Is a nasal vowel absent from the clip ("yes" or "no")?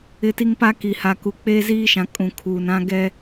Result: no